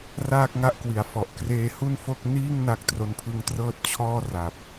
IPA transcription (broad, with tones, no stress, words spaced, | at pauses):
raː˥˩k̚ ŋa˥˩ʔkwi˩˦a̯fɔ˨˩ʔ kreː˧hu˥˩nfo˥˩k̚ niː˥˩ŋ na˦˥k̚tro˦˥npʰɯ˦˥ŋtrɤː˥˩t̚ t͡ɕʰɔː˥˩ ra˨˩p̚